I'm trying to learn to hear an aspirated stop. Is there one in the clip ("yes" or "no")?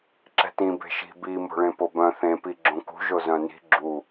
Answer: no